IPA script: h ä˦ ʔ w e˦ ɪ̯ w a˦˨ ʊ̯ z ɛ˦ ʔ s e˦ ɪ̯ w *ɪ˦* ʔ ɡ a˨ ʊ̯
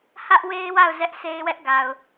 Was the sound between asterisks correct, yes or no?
no